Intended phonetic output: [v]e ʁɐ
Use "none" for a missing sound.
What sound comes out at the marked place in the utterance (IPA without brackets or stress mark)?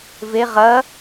v